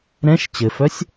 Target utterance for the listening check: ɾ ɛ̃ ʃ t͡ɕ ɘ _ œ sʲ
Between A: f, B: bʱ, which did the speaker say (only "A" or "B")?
A